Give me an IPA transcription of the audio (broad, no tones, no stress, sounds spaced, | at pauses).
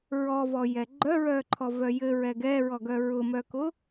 ɹ ɔ v ɔ j ɛ ɡ͡ǃ œ ɹ œ ǃʰ ɔ v œ j ɘ ɹ ɛ ɡ ɛ ɹ ɔ ɡ œ ɹ ʊ m œ k ʊ